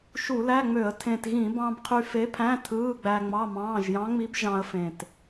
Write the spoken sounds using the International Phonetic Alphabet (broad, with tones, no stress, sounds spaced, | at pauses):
ʃ u˧˩˧ l æ˧˥˧ ŋ͡m ø˧˩˧ ə̯ tʰ ẽ˨˩ t ɣ ĩ˧˩˧ b ɑ̃˧ b qʰ y˧ f e˧˥ pʰ æ̃˧˥˧ tʰ ɯː˧˥˧ ɡ͡b æ˧ ŋ͡m ɑ˧˥˧ m ɑ̃ː˧˥˧ ʒ j ɑ̃˧˥ ŋ͡m i˧˥ b ʒ ɑ̃˧ ə̯ f ẽ˨˩ t